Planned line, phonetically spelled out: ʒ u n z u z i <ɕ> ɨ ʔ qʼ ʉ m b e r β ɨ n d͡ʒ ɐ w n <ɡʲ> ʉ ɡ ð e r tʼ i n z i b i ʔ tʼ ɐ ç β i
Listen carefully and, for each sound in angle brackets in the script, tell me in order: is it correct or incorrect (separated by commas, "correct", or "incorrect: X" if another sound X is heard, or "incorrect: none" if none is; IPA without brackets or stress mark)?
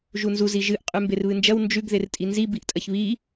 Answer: incorrect: ʒ, incorrect: d͡ʒ